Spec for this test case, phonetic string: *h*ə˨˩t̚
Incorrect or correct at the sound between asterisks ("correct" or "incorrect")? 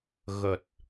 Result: incorrect